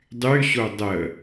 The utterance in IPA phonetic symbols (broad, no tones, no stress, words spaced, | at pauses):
dˤyɕo dˤə